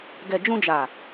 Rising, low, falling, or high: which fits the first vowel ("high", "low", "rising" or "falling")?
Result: low